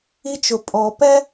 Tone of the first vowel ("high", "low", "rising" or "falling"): high